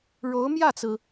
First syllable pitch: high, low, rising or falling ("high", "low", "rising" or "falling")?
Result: rising